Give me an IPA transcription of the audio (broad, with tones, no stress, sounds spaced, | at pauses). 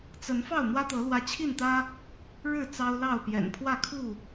t͡s ə˨˦ n f ɑ˥˨ ʊ̯ n̪ w ä˦ t̪ ɤ˨˦ l w ä˦ t͡ɕʰ i˥˨ n t̪ ä˦ | ɻ ɻ̩˥˨ t͡s ɑ˦ ʊ̯ l ɑ˥˨ ʊ̯ p j ɛ̰˨˩ n pʰ w ä˥˨ kʰ u˥˨